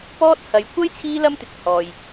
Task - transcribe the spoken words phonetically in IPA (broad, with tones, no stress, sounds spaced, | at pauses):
p ɔː˥ t̚ h ɐ˨˧ j kʷ ɐ˥ j t͡sʰ iː˥ l ɐ˥ m t̪ ɪ˨ k̚ h ɔː˨ j